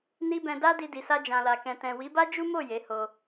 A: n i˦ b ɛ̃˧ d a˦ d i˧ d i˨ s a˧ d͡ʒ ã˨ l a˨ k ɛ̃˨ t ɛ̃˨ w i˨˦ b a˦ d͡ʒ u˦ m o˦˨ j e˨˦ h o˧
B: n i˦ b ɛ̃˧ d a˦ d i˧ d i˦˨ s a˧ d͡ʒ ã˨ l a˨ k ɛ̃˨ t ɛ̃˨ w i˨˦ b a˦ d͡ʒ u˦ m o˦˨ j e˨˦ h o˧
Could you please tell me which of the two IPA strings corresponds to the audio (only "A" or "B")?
A